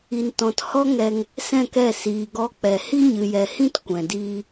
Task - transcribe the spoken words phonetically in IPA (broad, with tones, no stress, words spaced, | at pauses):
i˨ntɔ̃˨t hɔ˦ŋɛ˧ŋ | sɛ̃˦˨kɛ˦˨ siː˨ɡɔ˧ k͡pɛ˨ hi˦ɲɨ˨jɛ˨hĩ˦t kʷɛ̃˨diː˦